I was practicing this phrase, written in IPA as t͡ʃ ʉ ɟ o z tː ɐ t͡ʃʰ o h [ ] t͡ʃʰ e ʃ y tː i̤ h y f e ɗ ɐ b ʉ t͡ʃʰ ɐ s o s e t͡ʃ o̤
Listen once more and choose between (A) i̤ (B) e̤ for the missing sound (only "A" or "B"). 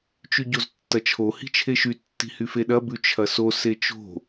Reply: A